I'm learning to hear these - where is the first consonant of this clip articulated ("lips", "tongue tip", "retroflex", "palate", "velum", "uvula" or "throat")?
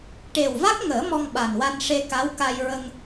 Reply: retroflex